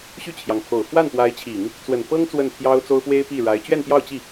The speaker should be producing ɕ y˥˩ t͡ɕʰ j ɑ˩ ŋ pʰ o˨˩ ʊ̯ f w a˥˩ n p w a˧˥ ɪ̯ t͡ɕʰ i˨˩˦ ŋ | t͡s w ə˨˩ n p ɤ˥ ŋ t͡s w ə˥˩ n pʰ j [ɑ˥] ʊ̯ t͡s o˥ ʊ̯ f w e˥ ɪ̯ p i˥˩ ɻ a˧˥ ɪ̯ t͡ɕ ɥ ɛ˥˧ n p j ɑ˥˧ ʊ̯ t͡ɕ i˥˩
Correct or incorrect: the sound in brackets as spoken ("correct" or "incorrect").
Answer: correct